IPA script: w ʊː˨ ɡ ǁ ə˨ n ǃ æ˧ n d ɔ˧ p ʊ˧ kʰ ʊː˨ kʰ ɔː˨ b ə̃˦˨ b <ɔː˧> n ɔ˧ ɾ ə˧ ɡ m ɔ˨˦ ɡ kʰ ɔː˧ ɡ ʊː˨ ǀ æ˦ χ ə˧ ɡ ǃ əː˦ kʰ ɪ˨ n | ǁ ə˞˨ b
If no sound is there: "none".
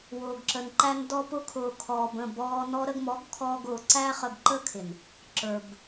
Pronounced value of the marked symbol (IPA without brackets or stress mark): ɔː˧